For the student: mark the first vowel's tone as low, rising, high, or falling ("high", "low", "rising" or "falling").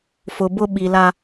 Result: low